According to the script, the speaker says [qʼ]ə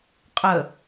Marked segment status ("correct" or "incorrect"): correct